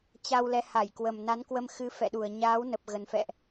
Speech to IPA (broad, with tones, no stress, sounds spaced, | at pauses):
t͡ɕ a˧ w l ɛ˨˦ h a˧˩ j k w ə˨˩ m n a˨˦ n k w ə˧ m x ɨ˨˦ f ɛ̰˧˨ ɗ u˨˩ ə̯ ɲ aː˨˦ w n ə˨˩ p̚ ɣ ə˨˩ n f ɛ̰˧˨ ʔ